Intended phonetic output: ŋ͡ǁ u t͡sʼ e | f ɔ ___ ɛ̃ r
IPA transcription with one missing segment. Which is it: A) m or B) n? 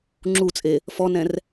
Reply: B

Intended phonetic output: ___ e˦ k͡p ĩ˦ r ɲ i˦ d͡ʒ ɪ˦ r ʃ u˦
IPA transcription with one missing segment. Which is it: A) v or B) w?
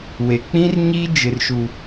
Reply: B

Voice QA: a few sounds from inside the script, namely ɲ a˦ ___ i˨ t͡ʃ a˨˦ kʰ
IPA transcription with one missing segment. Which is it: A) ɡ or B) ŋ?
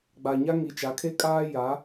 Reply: B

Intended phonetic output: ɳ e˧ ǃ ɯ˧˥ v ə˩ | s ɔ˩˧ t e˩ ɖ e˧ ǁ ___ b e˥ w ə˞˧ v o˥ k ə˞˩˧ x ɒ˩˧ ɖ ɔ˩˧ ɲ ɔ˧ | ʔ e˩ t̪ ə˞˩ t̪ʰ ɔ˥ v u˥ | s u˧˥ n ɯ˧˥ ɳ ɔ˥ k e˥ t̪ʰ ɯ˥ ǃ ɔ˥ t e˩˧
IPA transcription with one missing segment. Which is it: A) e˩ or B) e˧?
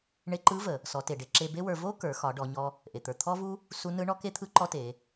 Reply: B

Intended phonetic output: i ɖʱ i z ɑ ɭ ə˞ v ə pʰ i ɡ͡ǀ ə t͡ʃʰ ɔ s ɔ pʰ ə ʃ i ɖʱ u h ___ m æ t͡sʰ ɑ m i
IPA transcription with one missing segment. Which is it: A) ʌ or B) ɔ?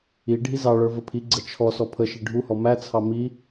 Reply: B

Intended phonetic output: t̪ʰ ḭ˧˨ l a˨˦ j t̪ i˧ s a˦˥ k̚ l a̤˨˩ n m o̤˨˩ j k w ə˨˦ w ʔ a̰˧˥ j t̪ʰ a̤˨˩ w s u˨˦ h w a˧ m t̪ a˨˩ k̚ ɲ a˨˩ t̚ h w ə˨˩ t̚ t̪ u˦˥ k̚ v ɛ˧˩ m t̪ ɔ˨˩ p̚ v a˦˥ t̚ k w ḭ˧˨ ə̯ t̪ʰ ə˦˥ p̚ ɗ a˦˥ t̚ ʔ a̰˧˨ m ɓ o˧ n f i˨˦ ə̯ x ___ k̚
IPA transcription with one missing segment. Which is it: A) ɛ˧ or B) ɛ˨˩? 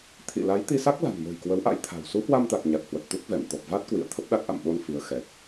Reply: B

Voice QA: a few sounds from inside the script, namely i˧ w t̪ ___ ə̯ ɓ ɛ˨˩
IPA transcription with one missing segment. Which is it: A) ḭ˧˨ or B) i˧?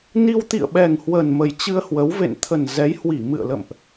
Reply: A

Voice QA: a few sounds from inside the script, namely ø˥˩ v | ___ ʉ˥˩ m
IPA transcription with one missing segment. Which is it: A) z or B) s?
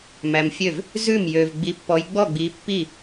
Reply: A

